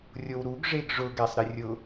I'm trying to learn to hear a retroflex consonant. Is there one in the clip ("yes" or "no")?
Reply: yes